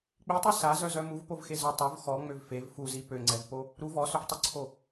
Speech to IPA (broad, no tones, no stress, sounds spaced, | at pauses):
k͡p i tˤ y s a z œ z œ m u v p o v x e z œ tˤ o v x ɔ ŋ͡m ø v f e v f u z i p ø ŋ͡ǀ ɛ v p o | ɾ u v ɔ s ø v tˤ y ǀʰ o